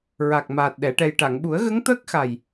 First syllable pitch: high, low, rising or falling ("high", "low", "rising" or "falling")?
low